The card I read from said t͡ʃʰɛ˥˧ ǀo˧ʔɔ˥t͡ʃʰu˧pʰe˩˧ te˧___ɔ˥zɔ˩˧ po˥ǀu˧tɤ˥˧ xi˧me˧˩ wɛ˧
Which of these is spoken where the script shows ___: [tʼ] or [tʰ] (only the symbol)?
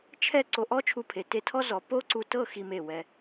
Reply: tʰ